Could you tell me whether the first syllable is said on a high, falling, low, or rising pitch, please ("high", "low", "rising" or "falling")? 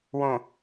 low